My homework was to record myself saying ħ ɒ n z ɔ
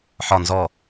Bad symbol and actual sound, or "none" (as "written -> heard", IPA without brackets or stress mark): none